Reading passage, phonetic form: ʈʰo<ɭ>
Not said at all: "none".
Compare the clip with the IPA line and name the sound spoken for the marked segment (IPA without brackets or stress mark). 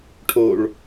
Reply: ɭ